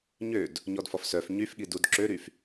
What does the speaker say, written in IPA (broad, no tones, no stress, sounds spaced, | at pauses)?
ɲ ø d | ɲ ɔ d f ɔ f s œ f ɲ y f ɠ i d u d ǁ ø ɾ y f